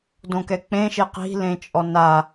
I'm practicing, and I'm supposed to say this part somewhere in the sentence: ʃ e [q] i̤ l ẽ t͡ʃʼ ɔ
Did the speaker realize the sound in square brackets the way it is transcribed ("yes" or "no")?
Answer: yes